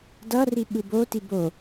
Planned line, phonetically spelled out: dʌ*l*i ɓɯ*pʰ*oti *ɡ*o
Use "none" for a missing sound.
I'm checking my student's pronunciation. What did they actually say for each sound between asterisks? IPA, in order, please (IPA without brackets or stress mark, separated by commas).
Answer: r, b, b